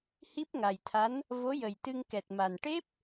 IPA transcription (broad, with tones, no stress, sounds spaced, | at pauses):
h i˦˥ p̚ ŋ a˨˩ j t̪ʰ a˧˥ n | v o˧˥ j ə˨˩ j t̪ ɨ˧ ŋ k ɛ˨˩ t̚ m a˨˩ n ʈ e˦˥ p̚